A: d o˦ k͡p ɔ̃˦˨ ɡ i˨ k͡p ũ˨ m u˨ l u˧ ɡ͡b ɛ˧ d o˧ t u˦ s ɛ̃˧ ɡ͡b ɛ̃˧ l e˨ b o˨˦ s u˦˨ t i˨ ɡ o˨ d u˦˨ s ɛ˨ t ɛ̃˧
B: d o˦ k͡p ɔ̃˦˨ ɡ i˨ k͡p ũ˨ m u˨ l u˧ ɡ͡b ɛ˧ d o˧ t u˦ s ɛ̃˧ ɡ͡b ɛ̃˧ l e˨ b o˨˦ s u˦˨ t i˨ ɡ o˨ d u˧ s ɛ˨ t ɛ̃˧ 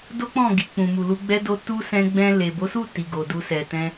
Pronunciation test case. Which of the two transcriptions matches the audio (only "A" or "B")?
B